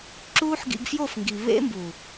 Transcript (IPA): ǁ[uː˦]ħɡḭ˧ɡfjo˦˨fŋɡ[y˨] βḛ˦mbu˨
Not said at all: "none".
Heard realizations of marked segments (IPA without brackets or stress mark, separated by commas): uː˦, i˨